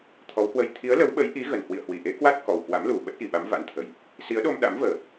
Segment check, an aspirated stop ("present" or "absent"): present